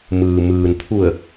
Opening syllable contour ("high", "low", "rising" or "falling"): low